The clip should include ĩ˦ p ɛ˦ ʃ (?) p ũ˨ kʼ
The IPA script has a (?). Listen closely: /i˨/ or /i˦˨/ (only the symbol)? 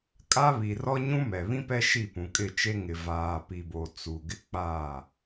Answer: i˦˨